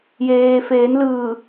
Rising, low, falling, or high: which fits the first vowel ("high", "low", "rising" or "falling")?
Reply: low